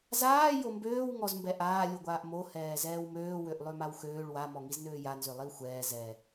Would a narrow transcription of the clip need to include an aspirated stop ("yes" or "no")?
no